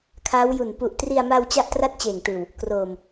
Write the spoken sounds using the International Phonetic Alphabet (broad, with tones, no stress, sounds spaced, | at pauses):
kʰ aː˦˥ w j u˨˩ n p u˨˩ ʔ t r i˧ a̯ m a˧ w t͡ɕ a˥˩ ʔ t r a˥˩ t̚ t͡ɕ eː˨˩ ŋ t ɯː˨˩ w | k r oː˨˩ m